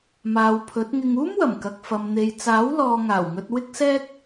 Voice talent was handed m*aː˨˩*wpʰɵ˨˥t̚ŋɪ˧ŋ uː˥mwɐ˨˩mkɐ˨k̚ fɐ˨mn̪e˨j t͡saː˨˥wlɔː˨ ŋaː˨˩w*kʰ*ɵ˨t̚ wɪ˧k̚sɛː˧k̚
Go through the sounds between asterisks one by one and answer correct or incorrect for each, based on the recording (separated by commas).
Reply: incorrect, incorrect